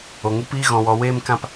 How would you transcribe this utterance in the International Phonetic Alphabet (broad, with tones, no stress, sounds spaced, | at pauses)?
o˨ ŋ u˦ p iː˦ ɣ ɔ̃˧ w ɔ˧ w eː˦ m k ã˦ p